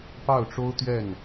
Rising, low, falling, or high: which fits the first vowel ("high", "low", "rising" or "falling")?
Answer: falling